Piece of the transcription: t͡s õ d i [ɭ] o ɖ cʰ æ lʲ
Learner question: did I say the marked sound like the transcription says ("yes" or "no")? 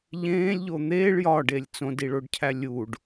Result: yes